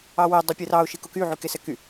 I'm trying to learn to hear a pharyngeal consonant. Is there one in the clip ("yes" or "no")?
yes